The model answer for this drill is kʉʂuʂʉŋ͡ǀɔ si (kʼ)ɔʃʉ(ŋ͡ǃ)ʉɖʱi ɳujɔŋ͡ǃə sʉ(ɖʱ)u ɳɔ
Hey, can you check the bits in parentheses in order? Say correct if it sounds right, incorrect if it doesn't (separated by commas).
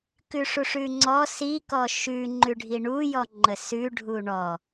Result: incorrect, correct, correct